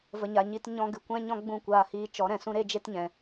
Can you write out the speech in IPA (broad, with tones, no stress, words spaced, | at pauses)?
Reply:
və˨ɲa˨ɲi˧t ɲɔ̃˧ɡɨ˨kʷɛ̃˦ ɲɔ̃˦ɡ͡bũ˦˨kʷaː˧hiː˧ t͡ʃɔ˨˦ɾɛ̃˨ sũ˦ɾe˦d͡ʒe˦tɲɛ̃˨